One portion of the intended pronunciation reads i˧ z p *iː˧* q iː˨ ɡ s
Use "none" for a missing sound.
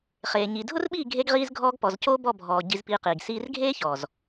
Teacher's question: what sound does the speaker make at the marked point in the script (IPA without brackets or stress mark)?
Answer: iː˧